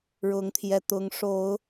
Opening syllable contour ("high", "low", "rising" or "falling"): rising